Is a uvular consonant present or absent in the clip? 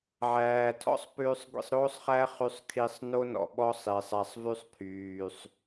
present